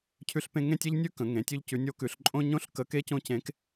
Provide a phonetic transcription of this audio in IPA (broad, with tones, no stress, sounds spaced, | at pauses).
cʰ ʉ˥ ɬ p ẽ˥ ŋ ẽ˥ tʲ e˥ ʎ nʲ ʉ˥ k ə̃˩˧ ŋ ẽ˩˧ tʲ ʉ˥ ʎ c ʉ˧˥ nʲ o˧˥ k ʉ˩˧ ɬ ǃʼ õ˥ ɲ õ˥ ɬ k ə˧˥ k e˥ c õ˥ c ẽ˧˥ k